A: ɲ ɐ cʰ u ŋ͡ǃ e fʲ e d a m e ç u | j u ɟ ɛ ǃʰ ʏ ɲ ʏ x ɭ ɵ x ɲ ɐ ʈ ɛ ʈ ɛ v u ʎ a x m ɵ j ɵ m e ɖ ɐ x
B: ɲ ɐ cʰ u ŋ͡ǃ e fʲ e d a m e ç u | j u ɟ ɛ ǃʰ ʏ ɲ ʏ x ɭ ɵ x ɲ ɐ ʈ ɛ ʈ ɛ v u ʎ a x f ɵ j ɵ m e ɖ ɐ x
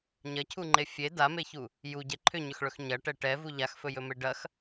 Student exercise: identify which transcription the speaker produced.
B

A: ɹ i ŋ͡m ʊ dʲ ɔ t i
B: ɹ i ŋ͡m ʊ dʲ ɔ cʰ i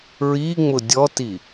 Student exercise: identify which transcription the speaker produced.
A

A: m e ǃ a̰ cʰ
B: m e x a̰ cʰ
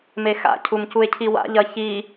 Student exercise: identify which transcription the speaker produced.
B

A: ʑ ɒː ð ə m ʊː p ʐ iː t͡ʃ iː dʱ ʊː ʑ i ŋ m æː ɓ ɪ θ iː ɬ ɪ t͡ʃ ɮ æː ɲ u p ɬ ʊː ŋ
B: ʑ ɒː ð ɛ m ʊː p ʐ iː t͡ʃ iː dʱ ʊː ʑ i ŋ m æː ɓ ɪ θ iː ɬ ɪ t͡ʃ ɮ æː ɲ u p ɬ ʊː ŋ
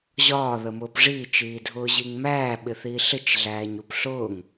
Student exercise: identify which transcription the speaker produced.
A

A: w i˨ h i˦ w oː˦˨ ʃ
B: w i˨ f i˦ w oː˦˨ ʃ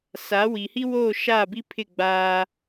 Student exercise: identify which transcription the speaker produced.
A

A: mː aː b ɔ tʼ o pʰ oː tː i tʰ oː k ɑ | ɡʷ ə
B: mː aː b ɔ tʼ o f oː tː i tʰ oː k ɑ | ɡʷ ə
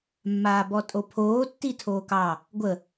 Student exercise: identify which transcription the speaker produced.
A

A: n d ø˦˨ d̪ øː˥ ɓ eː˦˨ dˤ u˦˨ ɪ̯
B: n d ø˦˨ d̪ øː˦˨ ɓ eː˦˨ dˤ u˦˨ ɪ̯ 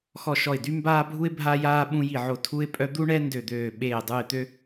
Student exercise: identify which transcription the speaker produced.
B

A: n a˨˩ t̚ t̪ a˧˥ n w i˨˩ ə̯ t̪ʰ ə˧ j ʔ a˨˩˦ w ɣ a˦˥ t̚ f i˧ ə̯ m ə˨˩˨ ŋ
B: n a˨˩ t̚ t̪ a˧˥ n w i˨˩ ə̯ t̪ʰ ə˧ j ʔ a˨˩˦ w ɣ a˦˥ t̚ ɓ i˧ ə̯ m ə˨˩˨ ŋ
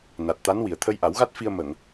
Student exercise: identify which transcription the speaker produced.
A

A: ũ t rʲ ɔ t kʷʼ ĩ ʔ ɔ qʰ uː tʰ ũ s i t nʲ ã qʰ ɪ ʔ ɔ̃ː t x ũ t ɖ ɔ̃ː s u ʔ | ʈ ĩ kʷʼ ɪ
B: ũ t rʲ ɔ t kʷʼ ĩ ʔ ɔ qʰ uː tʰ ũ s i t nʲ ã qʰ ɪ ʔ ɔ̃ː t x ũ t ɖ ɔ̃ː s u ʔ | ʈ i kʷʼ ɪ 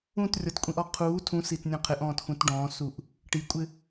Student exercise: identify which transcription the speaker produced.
B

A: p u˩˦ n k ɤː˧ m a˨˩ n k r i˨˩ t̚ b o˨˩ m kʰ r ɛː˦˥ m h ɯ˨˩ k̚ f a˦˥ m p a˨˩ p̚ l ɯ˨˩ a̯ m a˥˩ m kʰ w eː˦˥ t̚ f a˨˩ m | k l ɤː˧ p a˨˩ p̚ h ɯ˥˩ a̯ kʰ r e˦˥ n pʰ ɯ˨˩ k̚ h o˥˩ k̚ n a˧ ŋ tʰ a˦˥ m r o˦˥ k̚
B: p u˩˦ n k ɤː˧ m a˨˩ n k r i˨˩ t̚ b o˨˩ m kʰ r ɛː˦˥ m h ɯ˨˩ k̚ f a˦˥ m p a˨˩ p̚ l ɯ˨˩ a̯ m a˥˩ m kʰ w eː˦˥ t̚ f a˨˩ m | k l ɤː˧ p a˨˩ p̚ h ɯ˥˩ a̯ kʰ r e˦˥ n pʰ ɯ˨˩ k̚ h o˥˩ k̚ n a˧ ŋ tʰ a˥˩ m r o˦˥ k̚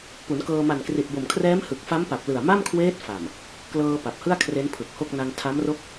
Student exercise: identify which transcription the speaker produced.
A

